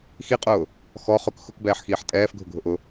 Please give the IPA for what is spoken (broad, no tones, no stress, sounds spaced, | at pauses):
x i qʼ ʊː | x ɔ χ ʊ k x ʊ k b ɛː ħ x iː ħ tʼ ɛː f ɡʱ ʊ ɡʱ ʊ ʔ ʊ